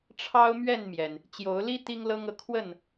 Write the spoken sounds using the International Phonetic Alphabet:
ʈ͡ʂʰ ɑ˦ ʊ̯ m ɥ ɛ˥˨ n m j ɛ˩ n | t͡ɕ j o˨˦ ʊ̯ l i˦ t̪ i˦ ŋ l ɤ˦ ŋ ɤ˨ kʰ w ə˥˨ n

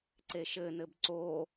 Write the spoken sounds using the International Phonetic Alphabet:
ǀ e ʃ ɘ n ɘ b ǀ o

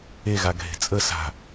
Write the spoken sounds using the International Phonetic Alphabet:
e ɣ a ɡʱ e̤ t͡sʼ ə s a̤

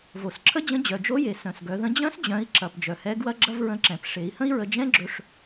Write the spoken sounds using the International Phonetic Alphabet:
v o˩ s ǁʰ ə˥ d͡ʑ ə̃˧˥ d͡ʑ œ˩ d͡ʒ o˧˥ j e˩ s œ̃˩ s ɡ œ˩˧ ð ə̃˧˥ d͡ʑ œ̃˧˥ s d͡ʑ œ̃˩˧ i̯ ǁ ɐ˩ p d͡ʒ œ˩ h ɛ˧˥ ɡ w ɐ˥ ɡ͡ǁ ɐ˥ v ɹ ə̃˧˥ ǁ ɛ̃˩˧ p ʂ e˩˧ i̯ h ə̃˥ i̯ ɹ ə˧ d͡ʒ ɛ̃˥ ɡ͡ǁ ɵ˧ ʂ

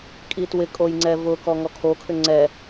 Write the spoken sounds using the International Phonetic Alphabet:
kʼ i t w ɪ kʼ o j ŋ͡ǀ ɛ v ʊ k ɔ ŋ ɔ kʰ o kʰ ʏ ŋ͡ǀ ɛ

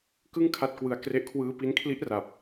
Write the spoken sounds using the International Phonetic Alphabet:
k ɯ˥˩ ŋ kʰ a˥˩ t̚ k w ɯ˧ a̯ k r e˦˥ ʔ kʰ w ɯː˦˥ p i˦˥ n kʰ l i˦˥ ʔ r a˨˩ p̚

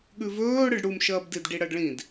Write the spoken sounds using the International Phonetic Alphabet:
ɠ ʉ v ɵː ɽ ɨ ɖ ɽ u m ʃ ɐː b d i d ɖ i ɽ ɐ ɖ ɭ ĩ d

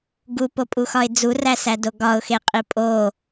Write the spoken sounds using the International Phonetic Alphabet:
ɡ u p o pʼ u x ɒ ɪ̯ d͡z u r æ s æ d o ɡ ɒ ʊ̯ x e qʼ i pʼ o

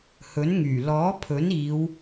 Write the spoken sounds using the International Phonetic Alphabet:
h ɵ˨˥ n ŋ yː˨˩ l ɔː˨˥ pʰ ɵ˨˥ n iː˨˧ w

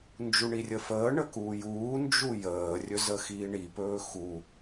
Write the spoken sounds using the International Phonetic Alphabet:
n d͡ʒ u ɳ i rʲ ə f əː ɳ ə k uː j uː n d͡ʒ u j əː rʲ ɵ z ə x iː ɳ i p ɵː x u

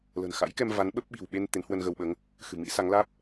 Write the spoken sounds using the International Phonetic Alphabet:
l ə̤˨˩ n x a̰˧˥ j k ɛ˧ m v a˨˦ n ɓ ə˦˥ p̚ ɓ i̤˨˩ w ɓ e˧ n t̪ e˨˦ n h w ə˧ n ɣ ə˧ w ɓ əː˨˦ ŋ | x ɨ̤˨˩ m ḭ˧˥ s a˨˦ ŋ l aː˦˥ p̚

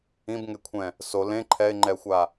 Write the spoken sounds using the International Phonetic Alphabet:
ĩ b ŋ e kʷʰ ɛ̃ | s o l ẽ ǃʰ ɛ ɪ̯ ŋ͡ǃ ɛ xʷ a

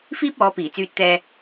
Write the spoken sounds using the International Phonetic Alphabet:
f iː˥ p̚ ɔː˨˧ p iː˨˩ t͡s yː˧ t̚ t̪ ɛː˧

